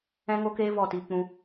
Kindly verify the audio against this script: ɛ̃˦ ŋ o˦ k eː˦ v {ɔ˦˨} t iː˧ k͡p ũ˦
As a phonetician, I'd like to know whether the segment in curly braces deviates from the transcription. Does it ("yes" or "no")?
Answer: no